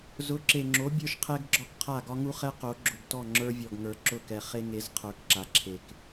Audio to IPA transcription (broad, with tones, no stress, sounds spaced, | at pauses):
z ʊ˨˦ ǁ e˨ ŋ͡ǁ o˨˦ bʲ ə˞˦ ʃ qʰ ɛ˦ ɡ ɡ͡ǁ ɒ˦ k qʰ a˦˨ ɡ ɒ˦ ŋ u˦ χ ɛ˦ q o˨˦ ɡ͡ǁ ʊ˨ ɡ t ɔ˦˨ ŋ͡ǁ ə˞˦ vʲ ɔ˨ ɡ ŋ ə˞˨ ǁ ʊ˦˨ k ɛ˨ χ e˦ ŋ e˨˦ z qʰ ə˞˨˦ k ǁ a˨ ǁʰ e˨ k